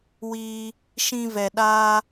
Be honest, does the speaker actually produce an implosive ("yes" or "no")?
yes